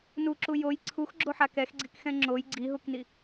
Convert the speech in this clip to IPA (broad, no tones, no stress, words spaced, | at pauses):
nuǁu joj ǀʰuxɡ͡ǁoħa kɛxɡ͡ǀikxɛ̃ ŋ͡ǁoj ɡ͡ǀiɦukni